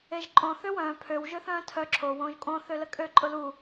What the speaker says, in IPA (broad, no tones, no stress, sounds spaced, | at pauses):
e ʒ ǃʼ õ θ ø w œ̃ː pʰ ø w ʒ ø θ œ̃ː tʰ œ ǁʰ o w õː ʒ kʼ õ θ ø l ə kʼ ø ǃʼ ʊ l u